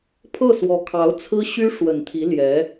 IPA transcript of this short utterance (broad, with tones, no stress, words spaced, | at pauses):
pʰɤ˥˩swɔ˧˥ kʰɑ˧˥ʊ̯t͡sʰɹ̩˥ ɕy˥ ʂwə˨˩nt̪ʰi˧˥ljɛ˧˥